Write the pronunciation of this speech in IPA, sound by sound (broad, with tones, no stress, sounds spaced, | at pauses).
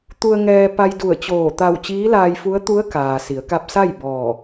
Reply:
t̪ u˧ ə̯ ŋ ɛː˧ p a˧ j d u˧˩ ə̯ t͡ɕ oː˧˩ t̪ a˧˩ w t͡ɕ iː˧˥ l aː˧ j f u˧˥ ə̯ t̪ u˧˥ ə̯ k aː˩ s i˩˧ ə̯ k a˧ p̚ s a˥˨ j b ɔː˧˩